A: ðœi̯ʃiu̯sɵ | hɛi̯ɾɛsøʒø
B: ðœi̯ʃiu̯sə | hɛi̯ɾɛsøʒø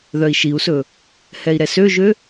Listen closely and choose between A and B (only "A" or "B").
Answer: A